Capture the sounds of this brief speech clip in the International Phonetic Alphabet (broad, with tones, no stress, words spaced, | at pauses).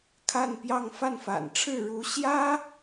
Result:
kʰa˥˧npjɑ˥˧ŋ fa˥˩nfa̰˨˩nʈ͡ʂʰɻ̩˥˩ ɻu˧˥ ɕjä˥